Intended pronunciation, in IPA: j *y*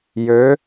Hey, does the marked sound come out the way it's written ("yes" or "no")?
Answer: no